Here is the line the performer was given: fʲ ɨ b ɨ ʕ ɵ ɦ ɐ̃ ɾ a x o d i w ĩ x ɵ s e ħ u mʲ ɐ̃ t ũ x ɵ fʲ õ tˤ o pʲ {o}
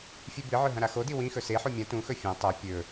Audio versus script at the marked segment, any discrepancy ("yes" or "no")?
yes